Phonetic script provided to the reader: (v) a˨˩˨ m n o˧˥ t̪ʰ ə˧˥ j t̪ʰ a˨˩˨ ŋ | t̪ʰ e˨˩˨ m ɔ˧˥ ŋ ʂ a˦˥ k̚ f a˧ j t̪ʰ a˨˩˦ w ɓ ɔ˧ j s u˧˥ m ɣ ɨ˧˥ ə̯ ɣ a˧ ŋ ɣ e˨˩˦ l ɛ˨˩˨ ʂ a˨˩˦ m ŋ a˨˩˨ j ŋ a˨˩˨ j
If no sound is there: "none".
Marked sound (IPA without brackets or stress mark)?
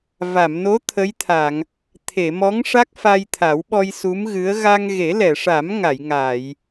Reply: v